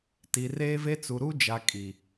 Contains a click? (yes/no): no